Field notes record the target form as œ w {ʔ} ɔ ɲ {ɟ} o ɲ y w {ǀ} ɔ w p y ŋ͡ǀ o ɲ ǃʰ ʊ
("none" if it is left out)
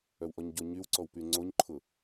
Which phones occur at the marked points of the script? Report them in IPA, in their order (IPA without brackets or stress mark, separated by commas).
ʔ, ɟ, ǀ